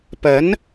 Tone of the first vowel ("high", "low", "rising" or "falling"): rising